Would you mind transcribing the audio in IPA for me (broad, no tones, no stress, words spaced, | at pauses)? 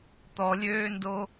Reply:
t̪ɔlʲøːndo